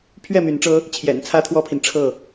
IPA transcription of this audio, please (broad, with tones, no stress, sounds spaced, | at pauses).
pʰ ɥ ɛ˥˨ m y˨˦ n ʈ͡ʂ ɤ˦ | t͡ɕʰ j ɛ̰˨˩ n t͡sʰ ä˦ t̪ʰ w ɔ˦ pʰ i˨ n ʈ͡ʂʰ ɤ˥˨